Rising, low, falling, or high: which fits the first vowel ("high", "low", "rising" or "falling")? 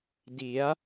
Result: rising